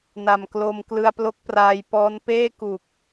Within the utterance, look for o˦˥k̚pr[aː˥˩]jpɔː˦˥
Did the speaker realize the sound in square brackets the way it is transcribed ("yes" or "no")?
no